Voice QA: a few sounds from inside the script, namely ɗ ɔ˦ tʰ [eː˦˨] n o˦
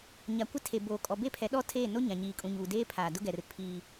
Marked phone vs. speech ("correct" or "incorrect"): correct